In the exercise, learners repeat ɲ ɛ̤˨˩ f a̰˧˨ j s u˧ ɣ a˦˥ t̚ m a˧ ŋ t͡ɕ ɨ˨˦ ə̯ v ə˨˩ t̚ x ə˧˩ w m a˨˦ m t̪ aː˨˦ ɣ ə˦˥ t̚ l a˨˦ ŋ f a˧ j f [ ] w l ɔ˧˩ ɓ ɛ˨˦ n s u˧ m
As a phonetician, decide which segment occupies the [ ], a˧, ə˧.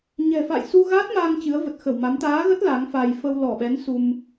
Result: ə˧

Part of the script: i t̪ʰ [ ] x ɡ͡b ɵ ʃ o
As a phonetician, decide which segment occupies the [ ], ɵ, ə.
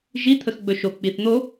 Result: ə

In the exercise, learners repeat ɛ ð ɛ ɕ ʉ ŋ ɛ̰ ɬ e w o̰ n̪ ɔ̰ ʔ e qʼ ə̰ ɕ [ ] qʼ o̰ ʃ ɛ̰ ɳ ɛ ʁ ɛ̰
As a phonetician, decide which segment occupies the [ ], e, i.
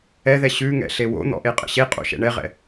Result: e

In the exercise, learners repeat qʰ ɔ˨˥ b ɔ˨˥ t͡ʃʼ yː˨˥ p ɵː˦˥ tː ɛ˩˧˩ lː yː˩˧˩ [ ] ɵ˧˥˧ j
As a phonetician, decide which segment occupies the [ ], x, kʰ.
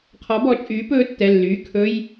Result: kʰ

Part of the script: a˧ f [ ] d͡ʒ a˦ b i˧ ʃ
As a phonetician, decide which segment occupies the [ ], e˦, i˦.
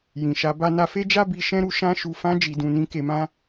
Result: e˦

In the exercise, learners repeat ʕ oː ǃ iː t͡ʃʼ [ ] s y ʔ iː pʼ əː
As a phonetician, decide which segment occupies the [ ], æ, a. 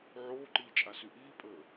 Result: a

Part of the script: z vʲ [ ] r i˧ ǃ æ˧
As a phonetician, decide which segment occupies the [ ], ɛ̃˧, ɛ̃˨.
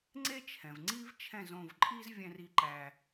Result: ɛ̃˧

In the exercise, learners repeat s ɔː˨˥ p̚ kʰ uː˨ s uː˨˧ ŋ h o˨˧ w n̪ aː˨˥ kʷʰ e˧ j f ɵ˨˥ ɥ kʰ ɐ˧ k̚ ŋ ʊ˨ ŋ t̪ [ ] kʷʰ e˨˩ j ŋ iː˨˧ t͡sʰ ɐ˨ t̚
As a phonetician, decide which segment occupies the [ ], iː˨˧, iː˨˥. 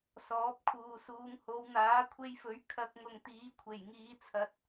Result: iː˨˥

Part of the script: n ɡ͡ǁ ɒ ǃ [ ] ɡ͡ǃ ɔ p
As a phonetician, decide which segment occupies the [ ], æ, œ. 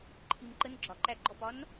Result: æ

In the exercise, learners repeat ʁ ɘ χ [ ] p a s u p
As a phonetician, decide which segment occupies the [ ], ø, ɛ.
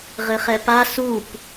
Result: ɛ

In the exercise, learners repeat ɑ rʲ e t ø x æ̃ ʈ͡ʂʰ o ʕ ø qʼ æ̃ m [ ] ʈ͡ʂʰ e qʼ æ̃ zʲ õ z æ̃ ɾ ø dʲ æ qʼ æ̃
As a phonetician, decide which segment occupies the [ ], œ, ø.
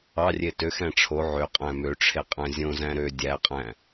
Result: ø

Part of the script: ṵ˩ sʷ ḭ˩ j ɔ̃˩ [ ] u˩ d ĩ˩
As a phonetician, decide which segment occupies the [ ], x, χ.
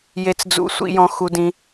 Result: x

